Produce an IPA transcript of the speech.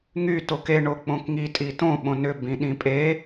ŋ y t o k e ɳ o k͡p õ k ŋ i tʼ i t õ ɓ õ n ʏ b ĩ ɗ ĩ pʼ e

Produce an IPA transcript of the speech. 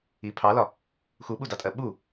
i pʰ ɑ l ɒ | x u ɓ u d ɑ tʼ ɜ ɓ u

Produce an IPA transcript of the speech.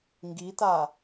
ŋ ɡ i t a

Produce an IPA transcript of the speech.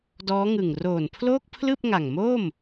d ɔː˦˥ ŋ ɯ˨˩ ŋ r oː˨˩ n pʰ l oː˥˩ k̚ pʰ l ɯː˥˩ p̚ ŋ a˨˩ ŋ m oː˥˩ m

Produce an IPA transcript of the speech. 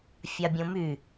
fʲ a bʲ õ m y

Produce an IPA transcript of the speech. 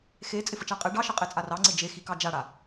x e t͡sʼ ɪ f ə t͡ʃ a qʼ e ɖ ɑ ʃ ə qʼ e t͡sʼ a r ɑ ŋ͡ǀ ɪ d͡ʒ e x i k ɑ d͡ʒ a ɽ a

